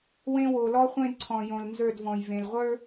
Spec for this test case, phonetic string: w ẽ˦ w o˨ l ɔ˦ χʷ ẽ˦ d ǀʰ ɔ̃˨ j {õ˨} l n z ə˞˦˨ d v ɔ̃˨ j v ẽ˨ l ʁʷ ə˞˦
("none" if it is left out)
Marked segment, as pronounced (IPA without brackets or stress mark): õ˨